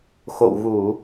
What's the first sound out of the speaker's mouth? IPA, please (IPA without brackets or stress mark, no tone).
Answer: x